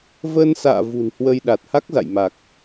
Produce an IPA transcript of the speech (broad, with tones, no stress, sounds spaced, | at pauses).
v əː˧ n s a̰ː˧˨ v ṳ˨˩ n h w ə˧ j ɗ a˨˩ t̚ h a˦˥ k̚ z a̰˧˨ j m a˨˩ k̚